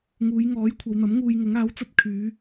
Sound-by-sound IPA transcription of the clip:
ŋuː˨˧jŋɔː˨˥j kʷʰɐ˨˧wn̪ɐ˨˥m ŋuː˧jŋʊ˨˥ŋ aː˨˥wt͡sɐ˧t̚kʰyː˨˧

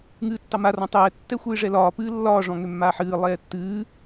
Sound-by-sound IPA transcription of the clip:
ŋɨːtːɑma rɔ̃tˤɛː tːɛxʷɨːʐɛlɒː pɨːlːɒː ʐɔ̃ŋømːaːħɨː lˠɛːtːɨː

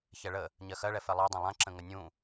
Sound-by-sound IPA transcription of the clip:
çɛɭə | ɲɜxɜɭɛ fɛlˠɜdˤɛ̃ lˠãǁə̃ ŋənʲũ

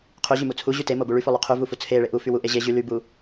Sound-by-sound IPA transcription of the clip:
qʰyʑymu t͡sʰuʑy temobu ɭyfolˠy qʰyvufu t͡sʰeɭe ʔufy wuʔe ʑe ʑy lybu

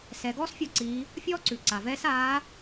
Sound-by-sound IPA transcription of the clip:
sɛ˩˧ɡɔː˥sfʲɔ˧ǀiː˩˧ | fʲɔː˥ǀʉ˩ǀa˩vɛː˧˥s aː˧˥

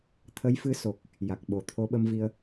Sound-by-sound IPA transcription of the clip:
t̪ʰə˧˥jfɨ˧˥so˨˩k̚ | ja˨˩k̚ɓo˨˩ t̪ʰo˧˥ɓə˧mvi˧ə̯

